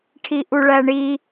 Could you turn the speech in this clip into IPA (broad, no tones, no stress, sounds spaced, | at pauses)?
ʈʰ i ʔ u ɭ æ ɳ i